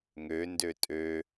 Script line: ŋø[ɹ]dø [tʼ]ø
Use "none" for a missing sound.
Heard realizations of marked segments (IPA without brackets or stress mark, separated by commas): n, tʼ